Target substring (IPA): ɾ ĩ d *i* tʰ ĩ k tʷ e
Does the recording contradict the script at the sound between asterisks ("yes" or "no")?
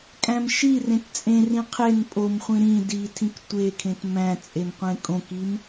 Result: no